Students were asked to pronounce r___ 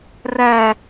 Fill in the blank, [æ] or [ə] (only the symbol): æ